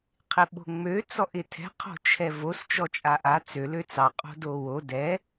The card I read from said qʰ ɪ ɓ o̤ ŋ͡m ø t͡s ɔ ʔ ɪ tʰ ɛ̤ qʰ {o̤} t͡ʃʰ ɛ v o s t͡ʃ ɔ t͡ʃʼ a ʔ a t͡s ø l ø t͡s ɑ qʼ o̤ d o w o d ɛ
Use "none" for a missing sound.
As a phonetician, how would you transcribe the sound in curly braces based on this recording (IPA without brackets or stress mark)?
o̤